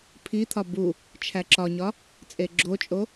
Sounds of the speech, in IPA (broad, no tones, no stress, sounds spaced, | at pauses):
pʰ i t̪ʰ ɒ b u | t͡ʃʰ æ ǁ ɒ ɲ ɒ | t͡sʼ e ɡ͡ǁ o t͡ʃʼ o